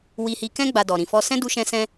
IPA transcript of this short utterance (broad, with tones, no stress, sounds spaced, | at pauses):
w i˦ h i˦ k ɛ̃˦ ɡ͡b a˧ d ɔ˨ ɾ ĩ˨ f ɔ˧ s ɛ̃˦ d u˦ ʃ ɛ̃˦ s ɛ̃˦